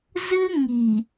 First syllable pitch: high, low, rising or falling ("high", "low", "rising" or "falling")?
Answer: high